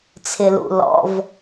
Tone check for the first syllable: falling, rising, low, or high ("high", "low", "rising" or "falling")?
low